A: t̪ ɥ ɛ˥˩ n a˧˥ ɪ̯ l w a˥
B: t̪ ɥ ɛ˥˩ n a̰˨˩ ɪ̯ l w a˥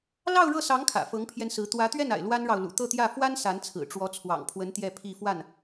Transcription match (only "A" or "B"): B